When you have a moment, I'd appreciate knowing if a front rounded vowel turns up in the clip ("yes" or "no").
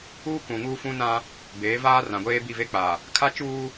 no